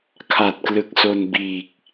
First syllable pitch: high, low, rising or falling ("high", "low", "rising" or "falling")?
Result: low